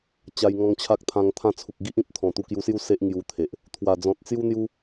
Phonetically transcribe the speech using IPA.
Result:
t͡ɕ a˧ j ŋ ɔ̃˧ ŋ t͡ɕʰ a˦ k̚ t̪ʰ ã˧ ŋ t̪ʰ ã˥˧ t͡sʰ u˨ k̚ ɡ i˦ ʔ ĩ˦ p̚ t̪ʰ ɔ̃˨˩ t̪ u˧ k j u˧ s j u˥˧ s e˦ ʔ ŋ j u˧ t̪ʰ e˨ ʔ | t̪ʰ w a˨˩ d͡z ɔ̃˨ t̚ t͡s j u˦ n̪ j u˦

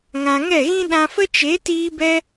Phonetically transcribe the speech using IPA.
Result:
ŋ ã˧ ŋ ɛ˦˨ ɣ ĩ˦ ɗ ã˧ f ə˦ t͡ʃ e˨˦ t iː˦ b ɛ˦

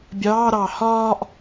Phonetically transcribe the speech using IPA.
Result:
bʲ ɑː ɾ ɑː h ɒː ʔ

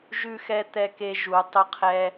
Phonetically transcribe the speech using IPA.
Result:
ʒ ʉ˧ x ɛ˧ t̪ ɛ˧ k e˧ ʒ u˨˩˦ tˤ ʊ˧ qʰ ɛ˧

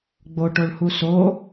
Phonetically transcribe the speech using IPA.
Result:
ɡ͡b o ʈ o ɭ h u s o

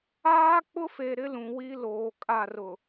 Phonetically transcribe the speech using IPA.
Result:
aː˦ k͡p ʊ˦ f e˨ ɾ ɪ˦ l ũ˨ w i˦ l oː˨ kʼ a˦˨ r ʊ˨

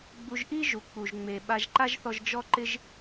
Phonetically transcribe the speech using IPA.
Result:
ɡ͡b u˧ ʒ ʔ i˥ ʒ u˩ k͡p u˩ ʒ ŋ͡m e˩ ɓ a˧ ʒ ǃ a˥ ʒ θ ɔ˧ ʒ d͡ʒ ɔ˥ ǃ ɪ˥ ʒ

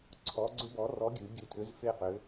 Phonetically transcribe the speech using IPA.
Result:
ǀʰ ɔ˨˥ ɡ͡ǀ ʏ˦˥ b ɔ˨˥ r ɔ˨˥ ɡʲ ʉ˩˧ ɡʲ ʉ˧ tʰ ʏ˨˥ z f e˥˨ q ʏ˨˥

